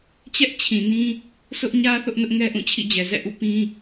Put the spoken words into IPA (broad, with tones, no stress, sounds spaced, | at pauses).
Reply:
t͡ɕ ɛ˦ ʔ t͡ɕʰ ĩ˨ n ĩ˦ | s ʊ˦ ʔ ɲ ä˦ θ ʊ˦ ʔ n ʊ˦ ʔ ŋ ɛ˦ ʔ ũ˦˨ t͡ɕʰ ḭ˦˨ d͡ʑ ɛ˨ z ɛ̰˦˨ ʔ ṵ˦˨ p ĩ˦